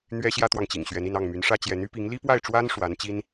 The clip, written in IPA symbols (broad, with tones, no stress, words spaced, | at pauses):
n̪ɥɛ˥ɕjä˥t̪wɑ˨ŋt͡ɕḭ˨˩ŋ ɕɥɛ˧˥ni˥˧n ɑ˥˩ŋmy˧˥nʂä˥t͡ɕjɛ˧˥n y˥pi˧˥ŋ li˥pwa˥˩ɪ̯ʈ͡ʂwa˥n ʂwa˧˥nt͡ɕi˥n